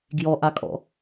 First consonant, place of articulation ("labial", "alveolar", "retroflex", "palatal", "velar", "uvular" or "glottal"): velar